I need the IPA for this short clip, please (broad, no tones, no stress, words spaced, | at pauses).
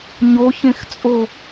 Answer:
ɲoçẽxt͡sʼo